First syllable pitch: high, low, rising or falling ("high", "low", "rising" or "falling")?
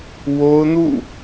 high